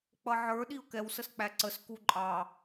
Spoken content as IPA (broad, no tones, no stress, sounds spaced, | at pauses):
k͡p ʌ ʕ ə˞ ɗ i ʊ̯ k ɛ w s ə s k͡p æ ǀ ə s k u ǃʼ ɑ